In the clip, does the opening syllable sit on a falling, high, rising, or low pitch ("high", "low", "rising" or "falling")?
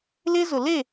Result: high